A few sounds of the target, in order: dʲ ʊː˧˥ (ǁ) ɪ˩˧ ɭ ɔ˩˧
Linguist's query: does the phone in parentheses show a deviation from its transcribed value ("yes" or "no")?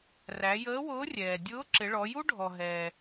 no